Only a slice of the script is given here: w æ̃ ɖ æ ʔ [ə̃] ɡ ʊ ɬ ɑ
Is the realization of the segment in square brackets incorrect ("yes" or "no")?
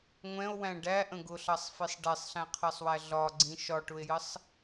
no